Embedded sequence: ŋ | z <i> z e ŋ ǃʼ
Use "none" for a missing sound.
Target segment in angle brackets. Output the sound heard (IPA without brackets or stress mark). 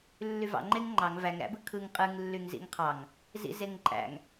ḭ